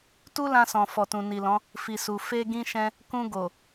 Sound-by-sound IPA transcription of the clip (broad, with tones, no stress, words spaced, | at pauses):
tu˦lã˧sɔ̃˨ fɔ˨tũ˨ni˨lɔ̃˨˦ | fi˨su˨ fe˧ɡĩ˧ʃɛ̃˧ | kũ˧ ɡo˨